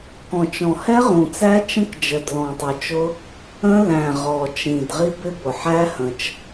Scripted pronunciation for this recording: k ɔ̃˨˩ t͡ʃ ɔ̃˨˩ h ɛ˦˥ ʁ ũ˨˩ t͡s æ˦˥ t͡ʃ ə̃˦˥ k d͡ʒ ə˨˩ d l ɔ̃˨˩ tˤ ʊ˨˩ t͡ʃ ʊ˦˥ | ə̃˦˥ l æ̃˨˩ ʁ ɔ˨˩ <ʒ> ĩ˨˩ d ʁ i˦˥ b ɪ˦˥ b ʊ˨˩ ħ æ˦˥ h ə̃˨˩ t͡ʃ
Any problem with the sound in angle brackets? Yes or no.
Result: yes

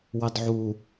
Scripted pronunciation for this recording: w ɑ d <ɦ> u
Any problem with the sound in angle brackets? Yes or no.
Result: yes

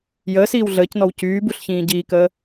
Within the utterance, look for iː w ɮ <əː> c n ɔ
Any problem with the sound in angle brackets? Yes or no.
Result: no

